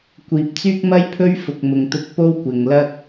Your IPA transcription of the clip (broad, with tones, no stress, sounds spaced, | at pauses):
kʷ iː˨ p̚ t͡s yː˥ k̚ m ɐ˥ j pʰ ɵ˥ ɥ f ʊ˨ k̚ m ʊ˨ ŋ t̪ ʊ˧ k̚ p o˥ w kʷ ɪ˨ ŋ l ɐ˥ k̚